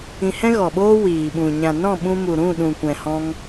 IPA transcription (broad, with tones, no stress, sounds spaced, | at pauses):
ĩ˧ h ɛ̃˦ ɣ ɔ˨ ɓ oː˦ w iː˨ ɓ ũ˨ ɲ ã˨ n ɔ̃˦˨ ɓ ũ˧ m u˨ ɾ ũ˦˨ ɗ ũ˨ kʷ ɛ̃˨ h ɔ̃˧ ŋ